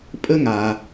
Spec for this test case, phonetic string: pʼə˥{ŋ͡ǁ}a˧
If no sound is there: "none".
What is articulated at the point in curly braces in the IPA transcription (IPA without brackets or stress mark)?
ŋ